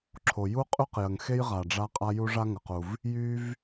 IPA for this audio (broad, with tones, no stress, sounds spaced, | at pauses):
ǁʰ o˩ j u˥ qʼ y˥ q j ə˩ ŋ x e˥ j ʁ a˩ ɖ͡ʐ a˥ qʼ a˥ j u˥ ʐ a˥ ŋ ə˩ q u˩ v | j y˥ v